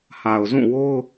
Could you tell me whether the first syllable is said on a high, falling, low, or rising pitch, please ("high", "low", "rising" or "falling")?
low